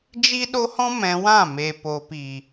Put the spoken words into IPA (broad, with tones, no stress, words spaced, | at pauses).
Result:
d͡ʒi˦ɗo˦hɔ̃˦ mɛ̃˧wã˦˨ me˨po˨pi˨